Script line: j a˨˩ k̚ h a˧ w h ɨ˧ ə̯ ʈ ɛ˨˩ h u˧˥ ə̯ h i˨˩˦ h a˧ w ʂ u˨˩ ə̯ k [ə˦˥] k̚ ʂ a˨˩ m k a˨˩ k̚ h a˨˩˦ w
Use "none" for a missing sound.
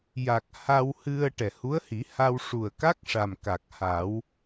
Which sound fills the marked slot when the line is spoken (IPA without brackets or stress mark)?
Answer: a˦˥